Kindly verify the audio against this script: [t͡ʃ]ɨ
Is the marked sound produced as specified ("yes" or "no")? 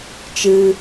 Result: yes